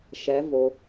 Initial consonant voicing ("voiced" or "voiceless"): voiceless